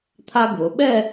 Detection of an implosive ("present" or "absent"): present